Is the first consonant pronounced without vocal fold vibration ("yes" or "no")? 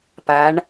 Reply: yes